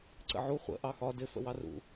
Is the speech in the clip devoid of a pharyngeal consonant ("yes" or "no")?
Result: no